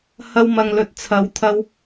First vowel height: low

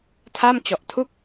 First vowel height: low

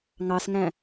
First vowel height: low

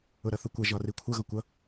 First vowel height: high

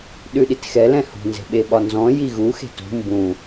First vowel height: high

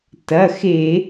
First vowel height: low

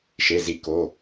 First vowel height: mid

